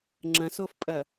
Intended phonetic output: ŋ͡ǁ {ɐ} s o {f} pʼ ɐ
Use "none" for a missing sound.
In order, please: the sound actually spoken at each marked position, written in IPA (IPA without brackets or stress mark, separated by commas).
ɐ̃, f